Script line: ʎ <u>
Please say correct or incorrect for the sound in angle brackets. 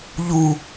correct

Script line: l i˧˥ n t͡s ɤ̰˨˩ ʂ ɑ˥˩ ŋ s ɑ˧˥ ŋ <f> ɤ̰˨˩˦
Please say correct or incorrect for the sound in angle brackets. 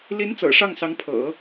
incorrect: pʰ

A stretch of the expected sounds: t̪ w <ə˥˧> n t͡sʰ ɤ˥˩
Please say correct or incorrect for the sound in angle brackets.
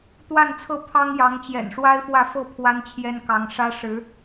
incorrect: a˥˧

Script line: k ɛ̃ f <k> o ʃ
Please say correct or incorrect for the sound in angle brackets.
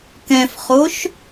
incorrect: χ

